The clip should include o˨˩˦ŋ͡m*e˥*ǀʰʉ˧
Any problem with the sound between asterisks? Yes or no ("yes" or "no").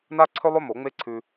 no